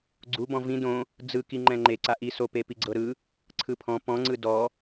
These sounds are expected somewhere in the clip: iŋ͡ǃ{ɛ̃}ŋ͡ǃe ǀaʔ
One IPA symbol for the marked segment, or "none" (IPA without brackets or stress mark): ɛ̃